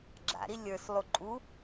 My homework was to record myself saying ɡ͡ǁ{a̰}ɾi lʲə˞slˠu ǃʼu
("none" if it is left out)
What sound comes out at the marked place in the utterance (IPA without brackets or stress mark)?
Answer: a̰